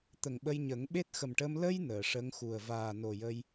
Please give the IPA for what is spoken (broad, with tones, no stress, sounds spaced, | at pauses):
t̪ ə˨˩ ŋ ɓ ə˧ j ɲ ə˨˩˦ ŋ ɓ e˦˥ t̚ x ə˨˩ m ʈ əː˧ m l ə˧ j n əː˨˩˨ ʂ ə˧˥ ŋ x u˨˩ ə̯ v aː˨˩ n o˨˩ j ə˧ j